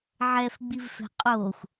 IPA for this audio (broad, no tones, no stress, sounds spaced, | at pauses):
ʕ ɛ f ɡ͡b i v f ɛ̤ qʼ o xʷ